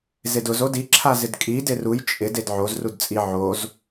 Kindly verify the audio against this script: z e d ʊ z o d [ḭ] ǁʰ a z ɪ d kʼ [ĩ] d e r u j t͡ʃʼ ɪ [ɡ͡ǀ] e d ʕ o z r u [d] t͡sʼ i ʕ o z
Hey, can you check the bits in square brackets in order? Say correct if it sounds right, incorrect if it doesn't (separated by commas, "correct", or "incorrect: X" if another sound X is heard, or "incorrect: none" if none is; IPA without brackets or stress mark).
incorrect: i, incorrect: i, incorrect: d, correct